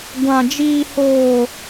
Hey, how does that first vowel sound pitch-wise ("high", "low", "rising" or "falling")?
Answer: high